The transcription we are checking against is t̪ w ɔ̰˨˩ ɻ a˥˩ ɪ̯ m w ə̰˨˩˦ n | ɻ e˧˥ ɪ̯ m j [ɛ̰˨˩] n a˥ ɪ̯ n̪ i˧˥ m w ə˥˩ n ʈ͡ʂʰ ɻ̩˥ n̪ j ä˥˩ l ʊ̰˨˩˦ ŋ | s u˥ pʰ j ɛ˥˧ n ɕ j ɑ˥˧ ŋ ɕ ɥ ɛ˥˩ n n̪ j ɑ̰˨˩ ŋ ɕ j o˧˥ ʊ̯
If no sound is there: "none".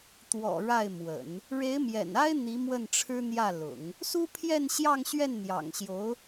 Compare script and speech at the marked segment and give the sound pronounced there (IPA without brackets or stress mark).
ɛ̰˨˩